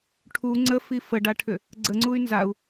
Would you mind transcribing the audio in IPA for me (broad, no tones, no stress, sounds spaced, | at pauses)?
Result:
ʈʰ u ŋ͡ǀ ə f i f ə ɖ a ʈʰ ʏ | ɡ͡ǀ ə ŋ͡ǀ u y̯ n z a u̯